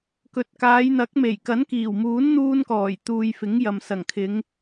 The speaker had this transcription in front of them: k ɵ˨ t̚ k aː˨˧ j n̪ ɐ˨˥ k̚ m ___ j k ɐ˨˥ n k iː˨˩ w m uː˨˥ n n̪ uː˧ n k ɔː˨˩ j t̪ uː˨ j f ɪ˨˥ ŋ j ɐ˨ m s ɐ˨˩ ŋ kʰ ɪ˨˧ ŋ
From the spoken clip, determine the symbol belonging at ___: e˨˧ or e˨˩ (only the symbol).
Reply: e˨˩